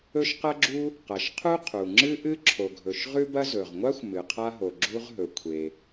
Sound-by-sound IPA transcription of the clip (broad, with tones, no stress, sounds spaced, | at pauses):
ɵ˥ ʃ q ɐ˥ ɡ͡ǁ u˥ | q ɐ˩ ʃ qʰ u˥ qʰ u˩ ŋ͡ǁ ɨ˥ ʔ ɨ˥ ǁʰ o˩ ɡʱ ɵ˩ ʃ ʁ ʉ˥ b ɐ˥ z ɵ˩ ʁ ŋʷ a˥ xʷ m ɨ˩ qʰ a˥ ɦ o˩ ɡ͡ǁ u˥ ʁ ɦ ɵ˩ kʷʰ e˩